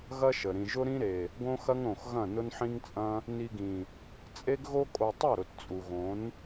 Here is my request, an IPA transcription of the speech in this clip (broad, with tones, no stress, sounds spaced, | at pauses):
ɣ ɐ˦ ʃ ə˨ ɾ ĩ˨ ʒ ʊ˦ ɾ ĩ˦ ɾ e˨ | ɡ õ˦ x ɐ˦ ŋ ɾ õ˨ x ɣ ɐ̃˦˨ n ʊ˦ n ħ ĩ˦ ŋ t͡sʼ ɐ̃˦ | n i˧ ɡ ĩ˨ | t͡sʼ e˦ ɡ ɣ o˦ kʼ o˧ tˤ ɐ˦˨ ɾ ʊ˨ t t͡sʼ u˨ ɣ õ˨˦ n